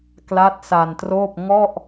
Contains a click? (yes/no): no